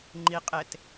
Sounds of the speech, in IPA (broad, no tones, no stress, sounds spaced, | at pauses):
ŋ͡ǃ i qʼ e t